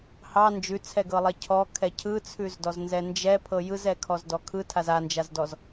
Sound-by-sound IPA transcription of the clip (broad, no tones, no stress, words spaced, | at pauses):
hɑ nd͡ʒʉt͡sʰɛɡɤlˠɛ cʰɔkʰɛ cʰɯt͡sʰʉzdɔznzɛ nd͡ʒɛpʰɤ jɯzɛkʰɔzdɔ kʰɯtʰaz and͡ʒazdɔz